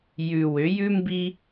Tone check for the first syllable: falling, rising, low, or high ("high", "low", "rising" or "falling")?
low